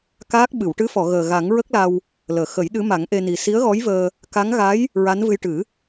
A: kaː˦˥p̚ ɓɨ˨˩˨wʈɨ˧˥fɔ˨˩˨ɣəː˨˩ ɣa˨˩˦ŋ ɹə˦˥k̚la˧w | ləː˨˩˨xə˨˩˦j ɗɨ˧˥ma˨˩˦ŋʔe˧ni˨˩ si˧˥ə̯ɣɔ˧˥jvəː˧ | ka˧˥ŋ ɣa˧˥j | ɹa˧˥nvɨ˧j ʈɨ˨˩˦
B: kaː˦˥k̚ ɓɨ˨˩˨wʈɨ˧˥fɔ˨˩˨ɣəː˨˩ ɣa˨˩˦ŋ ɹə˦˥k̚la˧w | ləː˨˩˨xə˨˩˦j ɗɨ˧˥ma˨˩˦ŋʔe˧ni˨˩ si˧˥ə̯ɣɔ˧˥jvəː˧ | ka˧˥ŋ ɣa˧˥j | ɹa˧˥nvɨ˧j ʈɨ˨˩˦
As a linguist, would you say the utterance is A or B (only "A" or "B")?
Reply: B